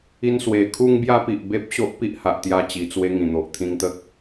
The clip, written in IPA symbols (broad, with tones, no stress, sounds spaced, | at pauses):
i˧ n s w e˨˩ kʰ u˧ ŋ b j a˧ p i˨ ʔ b e˦ p̚ ɕ o˦ ʔ p i˦ ʔ h a˨ ʔ t̪ j a˧ t͡ɕ i˨˩ t͡s w e˧ ŋ ĩ˨˩ n̪ o˨ ʔ t̪ʰ ĩ˧ ŋ t̪ ə˦ k̚